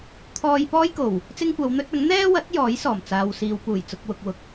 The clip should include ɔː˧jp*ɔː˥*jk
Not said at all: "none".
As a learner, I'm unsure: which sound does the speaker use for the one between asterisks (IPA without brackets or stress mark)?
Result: ɔː˥